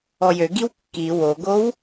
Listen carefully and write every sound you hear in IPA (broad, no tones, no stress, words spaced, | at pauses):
ɔjøɡiw kːi woɡow